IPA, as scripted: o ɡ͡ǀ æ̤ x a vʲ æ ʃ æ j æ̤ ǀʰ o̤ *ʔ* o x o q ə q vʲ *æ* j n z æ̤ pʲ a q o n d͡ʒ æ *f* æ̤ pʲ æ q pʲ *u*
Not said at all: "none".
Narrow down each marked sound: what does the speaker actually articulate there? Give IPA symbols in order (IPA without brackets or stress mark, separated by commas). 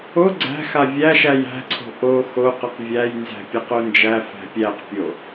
ʔ, æ, f, o